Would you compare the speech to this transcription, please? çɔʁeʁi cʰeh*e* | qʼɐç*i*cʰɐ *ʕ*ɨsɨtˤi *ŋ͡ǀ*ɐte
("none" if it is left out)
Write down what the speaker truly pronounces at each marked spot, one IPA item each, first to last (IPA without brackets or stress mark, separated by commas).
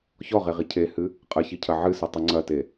ɨ, i, ʕ, ŋ͡ǀ